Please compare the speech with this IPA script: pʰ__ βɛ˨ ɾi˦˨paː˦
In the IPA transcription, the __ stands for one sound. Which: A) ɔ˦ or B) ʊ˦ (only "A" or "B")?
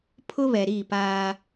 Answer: B